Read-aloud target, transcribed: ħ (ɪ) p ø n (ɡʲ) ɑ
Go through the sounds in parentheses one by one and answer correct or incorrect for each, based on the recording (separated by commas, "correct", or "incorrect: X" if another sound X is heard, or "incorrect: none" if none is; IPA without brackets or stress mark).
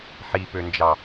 incorrect: i, incorrect: d͡ʒ